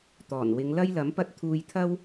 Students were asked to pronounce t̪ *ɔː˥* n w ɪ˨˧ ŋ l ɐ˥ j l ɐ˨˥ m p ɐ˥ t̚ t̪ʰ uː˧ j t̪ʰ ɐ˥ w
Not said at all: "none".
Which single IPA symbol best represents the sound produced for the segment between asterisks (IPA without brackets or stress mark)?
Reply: ɔː˨˩